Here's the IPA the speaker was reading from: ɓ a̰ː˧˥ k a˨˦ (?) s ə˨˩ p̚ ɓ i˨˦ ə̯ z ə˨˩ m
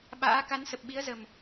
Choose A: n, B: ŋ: A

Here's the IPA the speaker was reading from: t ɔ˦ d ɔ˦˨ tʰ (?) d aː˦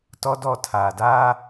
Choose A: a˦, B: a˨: B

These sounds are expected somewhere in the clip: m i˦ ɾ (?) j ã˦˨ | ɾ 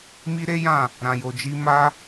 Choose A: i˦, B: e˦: B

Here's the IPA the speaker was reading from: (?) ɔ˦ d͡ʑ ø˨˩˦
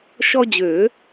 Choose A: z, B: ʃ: B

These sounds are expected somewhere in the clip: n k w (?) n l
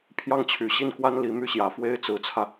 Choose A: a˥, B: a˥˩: A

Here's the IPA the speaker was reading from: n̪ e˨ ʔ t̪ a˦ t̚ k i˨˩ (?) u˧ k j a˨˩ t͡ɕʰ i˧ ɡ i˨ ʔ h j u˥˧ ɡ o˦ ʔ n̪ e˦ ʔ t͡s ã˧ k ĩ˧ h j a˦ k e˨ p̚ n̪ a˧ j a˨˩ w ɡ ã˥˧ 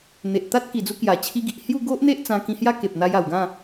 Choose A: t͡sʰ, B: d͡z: B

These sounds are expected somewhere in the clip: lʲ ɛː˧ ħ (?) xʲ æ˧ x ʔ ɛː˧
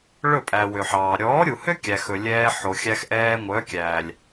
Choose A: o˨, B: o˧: A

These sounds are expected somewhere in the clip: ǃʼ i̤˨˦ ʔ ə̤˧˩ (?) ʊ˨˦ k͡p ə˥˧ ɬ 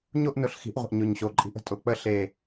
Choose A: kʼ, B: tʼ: B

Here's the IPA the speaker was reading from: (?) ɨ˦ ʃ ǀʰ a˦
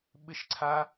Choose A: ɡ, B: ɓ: B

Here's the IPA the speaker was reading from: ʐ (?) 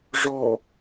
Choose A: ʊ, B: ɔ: B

